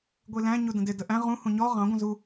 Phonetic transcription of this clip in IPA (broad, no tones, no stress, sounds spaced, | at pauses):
ɡʷ i l æ̃ ɲ u d ə̃ d ɪ d ə ʔ æ̃ ʁ ũ h ũ ɲ ɔ ʁ ɑ̃ ɡʷ ə̃ z u